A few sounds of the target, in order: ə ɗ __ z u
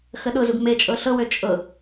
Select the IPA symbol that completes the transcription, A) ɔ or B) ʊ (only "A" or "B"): B